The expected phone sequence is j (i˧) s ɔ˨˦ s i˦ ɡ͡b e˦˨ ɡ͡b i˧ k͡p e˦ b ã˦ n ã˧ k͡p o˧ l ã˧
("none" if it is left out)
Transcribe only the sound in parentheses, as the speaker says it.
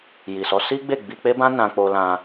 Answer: i˨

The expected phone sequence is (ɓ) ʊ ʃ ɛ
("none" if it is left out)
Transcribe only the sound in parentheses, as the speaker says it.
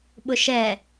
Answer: ɓ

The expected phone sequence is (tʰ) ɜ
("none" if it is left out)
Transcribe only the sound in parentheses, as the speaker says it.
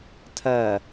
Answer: tʰ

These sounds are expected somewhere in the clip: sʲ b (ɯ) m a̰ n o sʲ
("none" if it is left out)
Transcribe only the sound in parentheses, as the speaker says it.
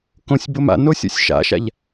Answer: ʊ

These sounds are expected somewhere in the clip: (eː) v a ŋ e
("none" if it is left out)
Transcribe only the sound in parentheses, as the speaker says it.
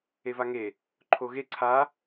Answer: e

